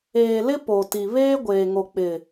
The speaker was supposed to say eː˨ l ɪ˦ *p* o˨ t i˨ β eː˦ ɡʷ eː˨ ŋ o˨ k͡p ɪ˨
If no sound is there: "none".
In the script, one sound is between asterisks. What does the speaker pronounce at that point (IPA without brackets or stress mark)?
p